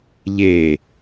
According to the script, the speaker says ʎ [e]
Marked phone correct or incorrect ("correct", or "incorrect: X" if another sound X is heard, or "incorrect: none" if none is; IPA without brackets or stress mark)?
correct